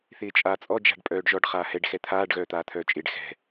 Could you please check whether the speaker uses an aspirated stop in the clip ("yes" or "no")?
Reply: yes